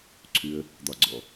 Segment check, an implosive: absent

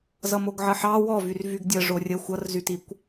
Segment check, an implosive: absent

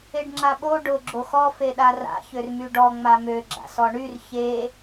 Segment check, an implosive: present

